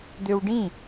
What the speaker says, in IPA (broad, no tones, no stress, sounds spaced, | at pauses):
d̪ ø w ɖ ĩ